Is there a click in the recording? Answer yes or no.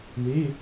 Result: no